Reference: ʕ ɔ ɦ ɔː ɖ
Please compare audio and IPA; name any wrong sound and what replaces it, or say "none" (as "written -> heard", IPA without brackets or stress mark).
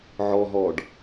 none